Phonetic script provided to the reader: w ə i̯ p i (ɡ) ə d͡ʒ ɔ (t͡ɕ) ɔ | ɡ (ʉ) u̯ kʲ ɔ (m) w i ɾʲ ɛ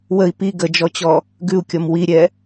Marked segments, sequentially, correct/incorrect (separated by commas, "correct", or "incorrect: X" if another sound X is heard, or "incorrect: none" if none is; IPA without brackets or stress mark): correct, correct, correct, correct